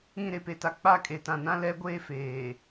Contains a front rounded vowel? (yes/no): no